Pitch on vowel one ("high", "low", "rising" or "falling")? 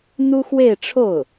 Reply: high